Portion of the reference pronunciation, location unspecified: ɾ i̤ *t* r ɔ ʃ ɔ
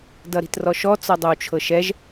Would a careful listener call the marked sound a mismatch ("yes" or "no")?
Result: no